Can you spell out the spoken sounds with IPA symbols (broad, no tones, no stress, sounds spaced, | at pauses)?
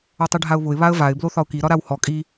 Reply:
ɔ tˤ i ɖʱ a ʊ̯ β ʊ ɪ̯ β a ə̯ v a ɪ̯ b l o θ ɒ ʊ̯ k i ɾ ɒ ɾ a w h ɔ kʼ i